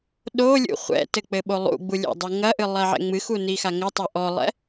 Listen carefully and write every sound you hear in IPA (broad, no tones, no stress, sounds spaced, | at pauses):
ɗ o lʲ ṵ χʷ ɛ̰ t ɘ k͡p ɘ ɓ o lˠ ṵ ɡ͡b u lʲ ɛ̰ dˤ ɨ ŋ ɐ ʔ ɨ lˠ ɛ ʕ ɛ̰ ŋ͡m ɨ x u n i x a ŋ ɘ tˤ ɛ ʔ ɔ lˠ ɛ̰